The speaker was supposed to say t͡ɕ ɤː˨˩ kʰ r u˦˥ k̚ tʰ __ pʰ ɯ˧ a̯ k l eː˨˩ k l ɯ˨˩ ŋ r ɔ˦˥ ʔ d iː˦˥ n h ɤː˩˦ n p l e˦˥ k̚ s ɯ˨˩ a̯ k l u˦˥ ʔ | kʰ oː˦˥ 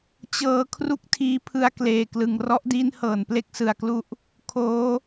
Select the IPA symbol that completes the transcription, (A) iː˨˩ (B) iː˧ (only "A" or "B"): B